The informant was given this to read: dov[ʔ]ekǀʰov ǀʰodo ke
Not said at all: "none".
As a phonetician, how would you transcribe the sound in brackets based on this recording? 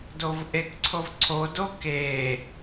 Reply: ʔ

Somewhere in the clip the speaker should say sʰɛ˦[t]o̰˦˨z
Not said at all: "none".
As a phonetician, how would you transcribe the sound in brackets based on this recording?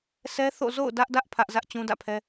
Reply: θ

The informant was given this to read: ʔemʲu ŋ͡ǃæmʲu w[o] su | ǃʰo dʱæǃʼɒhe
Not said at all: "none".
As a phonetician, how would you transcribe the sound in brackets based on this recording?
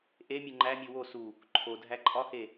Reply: o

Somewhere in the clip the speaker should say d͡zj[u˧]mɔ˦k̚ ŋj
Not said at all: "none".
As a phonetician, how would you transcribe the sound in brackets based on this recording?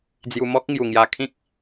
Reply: u˧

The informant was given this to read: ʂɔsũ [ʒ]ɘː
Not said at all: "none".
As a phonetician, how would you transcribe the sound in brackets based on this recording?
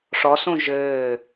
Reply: ʒ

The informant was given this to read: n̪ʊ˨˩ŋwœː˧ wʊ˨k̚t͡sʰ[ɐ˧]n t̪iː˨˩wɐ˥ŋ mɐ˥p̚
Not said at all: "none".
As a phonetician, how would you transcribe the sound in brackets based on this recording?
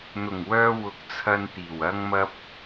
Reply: ɐ˧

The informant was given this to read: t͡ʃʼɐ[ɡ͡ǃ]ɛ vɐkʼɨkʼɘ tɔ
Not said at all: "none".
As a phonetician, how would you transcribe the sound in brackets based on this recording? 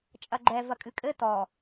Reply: ɡ͡ǃ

